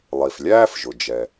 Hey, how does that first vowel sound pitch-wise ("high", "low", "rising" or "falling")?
low